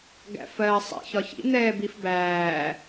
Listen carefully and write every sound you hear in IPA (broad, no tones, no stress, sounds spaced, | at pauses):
ɡ æ̰ f ɜː sˤ ɛ̰ ç ɒ ç ḭ n̪ ɛː b i f b æː